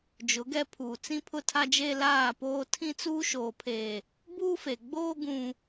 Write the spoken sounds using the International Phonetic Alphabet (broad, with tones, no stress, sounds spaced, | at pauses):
d͡ʒ ʊ˨˦ ɡ ɛ˦ pʰ uː˨ t͡s ĩ˦ pʰ ʊ˦ tʰ a˦ d͡ʒ eː˦ l aː˦˨ p oː˦ tʰ ĩ˦ t͡s uː˦ ʃ oː˨ pʰ eː˨ | b uː˦ f e˨ ɡ͡b oː˦ ɡ ũ˨